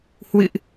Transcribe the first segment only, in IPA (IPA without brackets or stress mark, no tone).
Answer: h